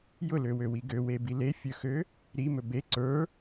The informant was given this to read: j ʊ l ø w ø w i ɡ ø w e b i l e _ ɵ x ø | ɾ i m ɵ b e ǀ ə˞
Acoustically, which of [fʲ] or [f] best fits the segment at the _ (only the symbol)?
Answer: fʲ